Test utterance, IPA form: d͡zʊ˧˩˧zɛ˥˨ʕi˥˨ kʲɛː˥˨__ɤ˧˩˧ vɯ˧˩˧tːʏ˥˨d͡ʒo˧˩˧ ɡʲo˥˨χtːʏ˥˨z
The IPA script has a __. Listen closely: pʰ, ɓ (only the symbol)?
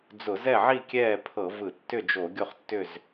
pʰ